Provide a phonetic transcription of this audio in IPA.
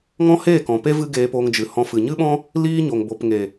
ŋ ɔ̃˦ h eː˦˨ k ɔ̃˨ p e˦ v ɨ˦ ɡ eː˧ p oː˧ ŋ d͡ʒ ɨ˨ h ɔ̃˧ f ɨ˨ ɲ ɨ˦ ɓ ɔ̃˦ | l iː˦ ɲ o˨ ŋ b o˨ p ŋ e˨

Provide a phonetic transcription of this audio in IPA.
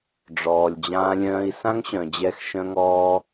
ɖ͡ʐ ɔː˨ lʲ d͡ʑ ãː˧ lʲ œ̃ː˧ i̯ s ã˦ ŋ ɕ œ̃˨ d͡ʑ ɛ˧ x ʃ œ̃˧ ŋ ɔː˧

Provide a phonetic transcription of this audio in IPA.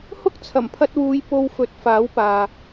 h ʊ˥ k̚ t͡sʰ ɐ˨˩ m pʰ ɐ˧ t̚ w uː˨˧ j p o˧ w f ɵ˨˥ t̚ f aː˨˥ w p aː˨

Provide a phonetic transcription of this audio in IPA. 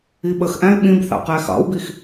i ɓ ə x ʔ æ̃ ɪ̯ ɓ ĩ b θ ɑ̰ q æ x ɑ̰ w b i x

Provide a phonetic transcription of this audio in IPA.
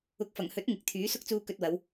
ʊ˨˥ k̚ f ɐ˨˩ ŋ h ɵ˨˥ t̚ ŋ ɪ˨˥ k̚ t̪ʰ yː˨˥ s ʊ˥ k̚ t͡s uː˧ k ɵ˧ t̚ w ɐ˨˧ w

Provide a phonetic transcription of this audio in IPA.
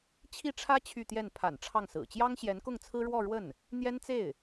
t͡ɕʰ i˥˩ ʈ͡ʂʰ ä˥ t͡ɕʰ y˥˧ t̪ j ɛ˥˩ n pʰ a̰˨˩ n ʈ͡ʂʰ ɑ˥˩ ŋ s ɹ̩˨˩ t͡ɕ j ɑ˥ ŋ ɕ j ɛ˧˥ n k ʊ˥˩ ŋ t͡sʰ ɹ̩˥ ɻ w ɔ˥˧ ɻ w ə˥˩ n | n̪ j ɛ˥ n t͡s e˥˩ ɪ̯

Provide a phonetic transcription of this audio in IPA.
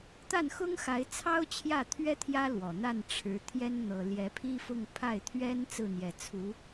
t̪ a˥˩ n x ʊ˥ ŋ x a˧˥ ɪ̯ t͡sʰ ɑ˥ ʊ̯ t͡ɕʰ j ä˥˩ t̪ʰ ɥ ɛ˥ t̪ʰ j ä˥ l w ɔ˨˩ n̪ a˥˩ n ʈ͡ʂʰ ɻ̩˧˥ t̪ʰ j ɛ˥ n n̪ ɤ˨˩ l j ɛ˧˥ pʰ i˥ f ʊ˥˧ ŋ pʰ a˥˩ ɪ̯ t̪ʰ ɥ ɛ˥ n t͡s ɹ̩˥˩ n̪ j ɛ˨˩ t͡sʰ u˧˥

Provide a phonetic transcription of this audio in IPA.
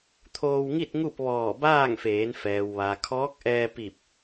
t̪ʰ oː˧ w ŋ i˥˨ t̚ ŋ u˥˨ p̚ ʋ ɔː˧˩ b aː˥˨ ŋ f eː˩˧ n f ɛː˩ w ʋ a˩ kʰ ɔː˧˥ k̚ ʔ ɛː˧ p i˧˩ p̚

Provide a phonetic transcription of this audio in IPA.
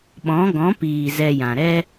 ɓ ɔ̃˨˦ ɡ ɔ̃˨˦ p iː˨ z ɛ˧ j ã˨ ɾ ɛ˧

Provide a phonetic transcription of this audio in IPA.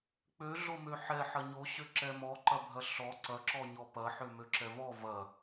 k͡p ø ɮ o m ø ħ ɛ ħ ɐ ɲ o ɕ ø ǁ ɛ m ɔ ǃ ɐ bʱ ɐ ɬ ɔ ǀ ɐ ǁ ɔ ɲ ɔ p ɐ ħ ø m ø ǁ ɛ v ɔ v ɐ

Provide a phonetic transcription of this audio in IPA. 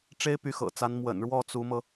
ʈ͡ʂ e˥ ɪ̯ p y˧˥ x ɤ̰˨˩ t͡s a˧˥ n m w ə̰˨˩ n ɻ w ɔ˥˩ t͡s u˧˥ m ɤ˧

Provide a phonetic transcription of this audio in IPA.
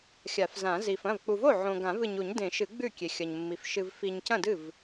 xʲ a˨˩˦ f z ã˨˩˦ z i˨ f ɐ̃˥˩ v k͡p u˨ v o˥˩ ʕ õ˨ ɡ ã˨˩˦ v ɨ˨ ɲ u˨˩˦ ɲ d ẽ˨˩˦ ʃ ɨ˨˩˦ ɡ͡b ʉ˥˩ kʲ e˨ xʲ ɐ˨ ɲ mː i˨ f ʃ ɨ˨ v f i˨ ɲ c ɐ̃˥˩ d ɨ˥˩ v

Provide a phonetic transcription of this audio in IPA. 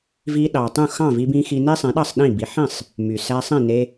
v i˧ ɗ ɑ˩ tˤ ũ˥˩ x ɑ̃˥˩ v i˧ b ĩ˧ x i˧ n e˥ sˤ ẽ˩˥ ɗ ɑ˥˩ sˤ ɗ ĩ˥˩ b i˩˥ ħ ĩ˥˩ sˤ | m y˩ s æ˧ sˤ ĩ˥˩ n e˧

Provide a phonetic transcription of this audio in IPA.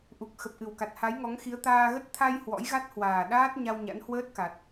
ʔ u˨˩ k̚ x ə˨˩ p̚ ʔ ɨ˨˩ w k a˨˩ t̚ h a˨˦ j ŋ ɔ˨˦ ŋ x i˨˦ ə̯ t̪ aː˧ ɣ ə˦˥ t̚ t̪ʰ a˧ j h w ɔ̰˧˥ j ɣ a˦˥ t̚ h w aː˨˩ ɗ aː˦˥ t̚ ɲ a˧ w ɲ a̰˧˥ n h w əː˦˥ t̚ k a˨˩ t̚

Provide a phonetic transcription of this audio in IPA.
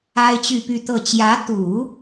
a˥ ɪ̯ t͡ɕ y˥˧ p y˥˧ t̪ ɤ˥˩ t͡ɕ j ä˧˥ t̪ u˨˩˦

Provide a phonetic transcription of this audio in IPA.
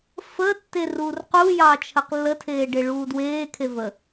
f ə tː e r uː r q u j ɑ t͡ʃʰ ə q lː ə tʰ eː ɖ e ɭ uː d w eː kʰ e v ə

